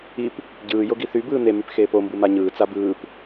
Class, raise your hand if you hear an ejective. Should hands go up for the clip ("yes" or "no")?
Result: no